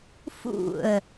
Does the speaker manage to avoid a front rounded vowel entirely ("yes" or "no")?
yes